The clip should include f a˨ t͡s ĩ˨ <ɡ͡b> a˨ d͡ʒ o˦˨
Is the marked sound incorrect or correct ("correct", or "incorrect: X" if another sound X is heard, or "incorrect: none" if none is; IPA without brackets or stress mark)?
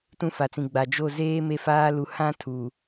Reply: correct